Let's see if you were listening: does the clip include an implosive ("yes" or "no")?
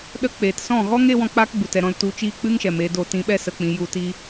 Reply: yes